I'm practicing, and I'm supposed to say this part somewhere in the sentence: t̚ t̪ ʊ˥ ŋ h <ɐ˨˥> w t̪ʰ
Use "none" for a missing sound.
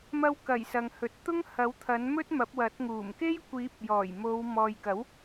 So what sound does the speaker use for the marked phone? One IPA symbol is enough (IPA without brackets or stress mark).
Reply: ɐ˨˥